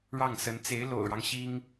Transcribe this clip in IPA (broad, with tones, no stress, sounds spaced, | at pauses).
ɻ ɑ˥˩ ŋ s ə˧˥ n t͡s e˧˥ ɪ̯ l o̰˨˩ ʊ̯ ɻ ɑ˦ ŋ ɕ i˥ ŋ